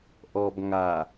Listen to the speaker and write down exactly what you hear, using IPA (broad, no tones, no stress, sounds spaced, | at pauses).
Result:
ʔ ɔ b ŋ a